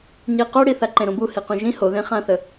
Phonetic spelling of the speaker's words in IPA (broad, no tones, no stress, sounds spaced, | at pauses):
ɲ i q o ɽ i θ a ǃ ẽ ɾ õ b u h i q ũ ʒ ĩ h o ð ẽ χ ã θ ə